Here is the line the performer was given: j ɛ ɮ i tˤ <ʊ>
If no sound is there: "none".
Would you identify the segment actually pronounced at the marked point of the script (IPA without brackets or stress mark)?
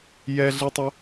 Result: ʊ